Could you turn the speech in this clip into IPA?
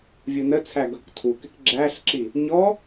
vʲ u n ə t͡sʰ æ ɡ ʌ k tʰ u k ɪ k ɡ͡ǁ æ ɬ ǁ i | ɲ ɔ

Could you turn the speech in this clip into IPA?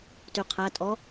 t y qʰ æ tʼ ɔ

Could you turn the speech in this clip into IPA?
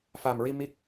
f a˨˩ m ɹ i˧ m i˦˥ k̚

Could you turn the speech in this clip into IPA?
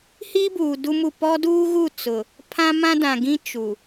h iː˦ b uː˨ d u˦ m u˦˨ p ɔ˦ d uː˦ ɣ u˦˨ t͡s ʊ˨ | pʰ ã˦ m ã˦ d ã˨ ɡ ĩ˦ t͡ʃ u˨

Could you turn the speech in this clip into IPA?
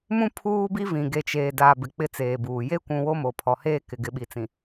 m ũ˦ pʰ uː˦ b i˦ v ĩ˨ ɡ e˨ t͡ʃ eː˨ d a˨ b ɪ˨ k͡p ɪ˦ t͡s eː˨ b uː˨ j e˦ kʷ ũ˨ w o˦ m o˨ pʰ ɔ˨ h eː˦ k ɪ˨ ɡ ɪ˨ ɓ i˨ t͡s ĩ˨

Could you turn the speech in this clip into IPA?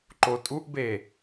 ǃ o tʼ u ʔ b e

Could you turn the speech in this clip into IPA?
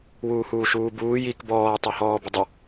w uː h uː ʃ uː b uː j i k b ɔː tˤ ɑ h ɔː b ə dˤ ə

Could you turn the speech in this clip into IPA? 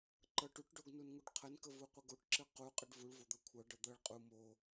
ǃ ɤ ʈ u ʈ ɖ o ɡ n u n ŋ u ɖ qʰ ə n k ə v u qʷ ə ɡ o ʈ ǁ ɨ q u qʼ ɨ ɖ v u ɭ v o d̪ ɤ kʷʰ ɤ ɖ ɤ d̪ ɤ ɭ qʼ u m o

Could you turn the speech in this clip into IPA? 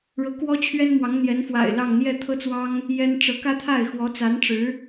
ɻ ɤ˧˥ k w ɔ˥ t͡ɕʰ ɥ ɛ˥ n m w ɑ˧˥ ŋ n̪ j ɛ˧˥ n f w a̰˨˩ ɪ̯ l ɑ˥˧ ŋ n̪ j ɛ˥˩ t̪ʰ ɤ˥ t͡s w ɑ˥ ŋ | j ɛ˥ n ʈ͡ʂ ɤ˧˥ k ä˥ t̪ʰ a˥˩ ɪ̯ x w ɔ˧˥ t͡s a˧˥ n ʈ͡ʂ ɻ̩˧˥

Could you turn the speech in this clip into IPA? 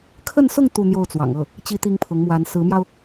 kʰ ə˥˧ n s ʊ˥˧ ŋ t̪ u˥˧ n̪ j o˥˩ ʊ̯ t͡s w ɑ̰˨˩ ŋ ɤ˥˩ | t͡ɕ i˥ t̪ i˥ ŋ pʰ ʊ˧˥ ŋ m w a˧˥ n s ɹ̩˧˥ m j ɑ˧ ʊ̯

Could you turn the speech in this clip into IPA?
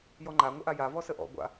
j ɔ ŋ͡ǃ a ŋʷ ɐ ʔ a j a v ɔ s ə ʔ ɔ̰ ɡʷ a̰

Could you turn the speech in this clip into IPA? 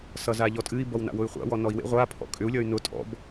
s ʌ z a ʎ ɔ tʼ ɨ i̯ b ʌ w n a̰ w ʊ y̯ χʷ a̰ w ɔ n ɔ i̯ w ḛ ʁʷ a pʰ ɔ̰ kʼ ʏ u̯ lʲ ʌ y̯ n ʊ tʼ ɔ̰ b

